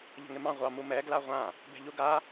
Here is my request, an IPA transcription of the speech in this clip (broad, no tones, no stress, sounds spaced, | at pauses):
ʎ ə̤ ŋ ɪ m ɑ̃ ʁʷ ɑ m u m ɛ ɡ l a ʁʷ ã | b ɛ̤ ʎ u ɡ a